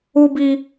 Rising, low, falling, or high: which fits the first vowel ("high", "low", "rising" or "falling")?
high